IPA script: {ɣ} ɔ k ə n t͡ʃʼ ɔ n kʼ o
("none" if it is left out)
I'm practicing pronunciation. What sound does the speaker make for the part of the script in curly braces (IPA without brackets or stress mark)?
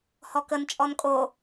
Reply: h